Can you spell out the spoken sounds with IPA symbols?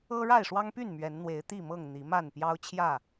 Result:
ɤ˦ ɻ a˥˨ ɪ̯ ʂ w ɑ˦ ŋ p y˥˨ n m ɥ ɛ˨˦ n n̪ w e˨˦ ɪ̯ t̪ i˥˨ m ɤ˥˨ ŋ n̪ i˨˦ m a˥˨ n p j ɑ˦ ʊ̯ t͡ɕʰ j ä˥˨

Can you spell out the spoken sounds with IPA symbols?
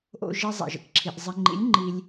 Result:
ʔ o̰˥ ʒ i˥ zˤ ḭ˩˧ ʒ ə̰˧ k ǁʰ i˧ ʔ zˤ i˧ ŋ͡ǃ ḭ˧˥ lʲ ŋ͡ǃ i˧ lʲ

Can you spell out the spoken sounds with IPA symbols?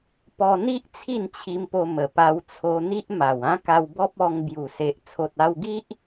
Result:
p ɔ˧ n̪ i˦ ʔ t͡sʰ i˥˧ n t͡ɕʰ i˧ m p o˧ m ə˨˩ p a˧ w t͡sʰ o˧ n̪ i˦ ʔ m a˨˩ w ã˦ k a˧ w b ɔ˦ p̚ ɔ˧ ŋ b j u˨˩ s e˨ ʔ t͡sʰ o˨ t̚ a˧ w ɡ i˦ ʔ

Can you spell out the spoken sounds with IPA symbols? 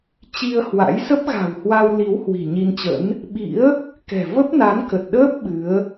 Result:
t͡ɕ i˧ ə̯ h w a̰˧˥ j s ə˦˥ p̚ ɣ a̤˨˩ w h w a˧ w l i˨˦ w h w i̤˨˩ ɲ i˧ n t͡ɕ ə̰˧˥ n | ɓ ḭ˧˥ ə̯ | k ɛ̤˨˩ v ə˦˥ p̚ n a˨˦ n k ə˨˩ t̚ ɗ əː˦˥ p̚ ɓ ɨ˨˦ ə̯

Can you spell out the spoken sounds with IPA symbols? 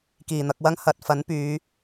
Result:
k iː˨˩ n̪ ɐ˧ k̚ w ɐ˥ ŋ h ɐ˨ t̚ f ɐ˨˥ n p yː˨˧

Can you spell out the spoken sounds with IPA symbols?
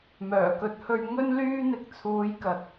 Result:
m œː˨˩ k ɵ˨ t̚ h ɵ˧ ɥ ŋ ɵ˥ n l yː˥ n̪ ɪ˧ k̚ t͡sʰ uː˨˧ j k ɐ˨˥ t̚

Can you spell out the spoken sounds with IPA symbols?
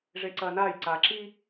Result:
ʐ e ǀ ɐː n aː j ǀ aː ǁ i

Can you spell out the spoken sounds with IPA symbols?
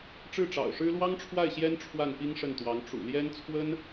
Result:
ʈ͡ʂ ɻ̩˥˩ ʈ͡ʂ ɑ̰˨˩ ʊ̯ ʂ ɻ̩˥ l w ɑ˥ ŋ ʈ͡ʂʰ w a˥˩ ɪ̯ ɕ j ɛ˥ n ʈ͡ʂʰ w a˥˩ n p i˥ ŋ ʂ ə˥˩ n t̪ w ɑ˧˥ ŋ ʈ͡ʂ ṵ˨˩ l j ɛ˥ n t͡sʰ w ə˥ n

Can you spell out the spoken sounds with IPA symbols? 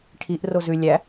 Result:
ʈʰ i ʔ r o z ʉ lʲ æ

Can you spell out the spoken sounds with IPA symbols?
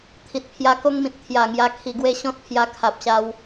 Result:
t̪ʰ i˨ t̚ pʰ j a˧ k o˦ ŋ m ĩ˨ t̚ t̪ʰ j a˨˩ ŋ j a˧ kʰ i˨˩ ɡ w e˥˧ ɕ ɔ̃˦ t̚ pʰ j a˧ kʰ a˨ p̚ ɕ a˧ w

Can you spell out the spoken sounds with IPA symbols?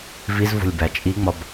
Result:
v i z v o̤ lʲ b æ t͡ʃʼ i ŋ͡m ɒ b

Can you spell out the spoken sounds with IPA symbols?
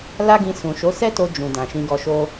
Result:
l a˦ ɡ ĩ˧ s ũ˨ ʃ o˨˦ s ɛ˦ t o˧ d͡ʒ ũ˨ d ã˨ ʃ ĩ˧ ɡ ɔ˧ ʃ o˦

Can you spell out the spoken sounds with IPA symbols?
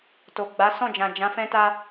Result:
t o˨ ɡ͡b a˨˦ s ɔ̃˦˨ d͡ʒ ã˨ d͡ʒ ã˨˦ f ɛ̃˦ t a˦

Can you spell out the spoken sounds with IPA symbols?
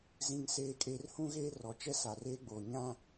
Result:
z ĩ˦ ŋ s eː˦ kʼ eː˦ r h ũ˦ ɣ eː˦ r ɔ˨ t͡ʃ ɛ˦ s a˨ r eː˦ ɡ͡b oː˨ ɲ ã˦

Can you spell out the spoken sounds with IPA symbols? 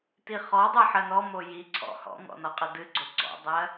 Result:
t i χ ɔ dˤ ɨ ħ ɜ n ɔ m o j i ǀʰ ɔ̰ h ɔ̰ ŋ ɔ̰ n ɔ qʼ ɪ d ɨ ɡ͡ǀ o ɡ͡ǀ ɔ̰ dˤ ɜ

